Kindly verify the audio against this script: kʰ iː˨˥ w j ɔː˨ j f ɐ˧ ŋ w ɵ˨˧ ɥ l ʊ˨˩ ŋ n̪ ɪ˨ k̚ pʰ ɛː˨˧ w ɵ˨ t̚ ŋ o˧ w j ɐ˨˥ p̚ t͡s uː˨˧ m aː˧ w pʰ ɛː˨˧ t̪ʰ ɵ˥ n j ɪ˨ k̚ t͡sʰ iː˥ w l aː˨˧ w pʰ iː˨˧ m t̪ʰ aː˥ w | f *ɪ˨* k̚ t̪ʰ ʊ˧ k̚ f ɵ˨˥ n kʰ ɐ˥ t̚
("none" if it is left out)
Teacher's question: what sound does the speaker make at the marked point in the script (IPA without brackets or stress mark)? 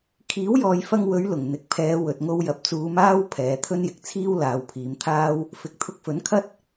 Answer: ɪ˨